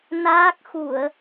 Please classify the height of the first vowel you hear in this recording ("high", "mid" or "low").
low